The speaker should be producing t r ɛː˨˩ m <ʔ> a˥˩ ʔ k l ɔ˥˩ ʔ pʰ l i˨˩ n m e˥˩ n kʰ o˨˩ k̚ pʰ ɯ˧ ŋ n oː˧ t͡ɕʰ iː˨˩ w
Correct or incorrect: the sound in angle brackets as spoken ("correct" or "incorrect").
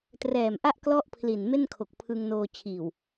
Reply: correct